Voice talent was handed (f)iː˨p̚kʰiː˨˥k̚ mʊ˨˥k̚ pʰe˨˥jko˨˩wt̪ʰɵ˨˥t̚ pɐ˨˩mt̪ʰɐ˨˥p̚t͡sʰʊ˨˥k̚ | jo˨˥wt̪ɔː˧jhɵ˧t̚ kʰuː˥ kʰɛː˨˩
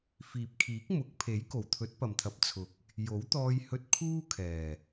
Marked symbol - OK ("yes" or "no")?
yes